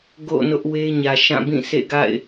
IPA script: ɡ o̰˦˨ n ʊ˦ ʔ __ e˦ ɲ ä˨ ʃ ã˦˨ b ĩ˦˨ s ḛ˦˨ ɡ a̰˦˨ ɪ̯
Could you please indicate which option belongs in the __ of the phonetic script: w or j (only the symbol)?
w